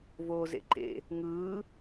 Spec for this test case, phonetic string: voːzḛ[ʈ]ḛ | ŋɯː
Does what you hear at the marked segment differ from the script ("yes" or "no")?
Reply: yes